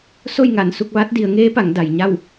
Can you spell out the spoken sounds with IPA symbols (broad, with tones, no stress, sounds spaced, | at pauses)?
s o˥˨ j ŋ a˧˩ n s u˥˨ k̚ ʋ a˧˥ t̚ d i˩˧ ə̯ ŋ eː˧˥ p a˩˧ ŋ d a˩ j ɲ a˥˨ w